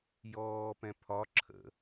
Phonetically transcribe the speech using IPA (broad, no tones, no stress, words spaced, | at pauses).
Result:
jɔːpɛ̃ pʰɒ ǁʰə̰